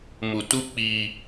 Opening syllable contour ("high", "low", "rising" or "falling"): low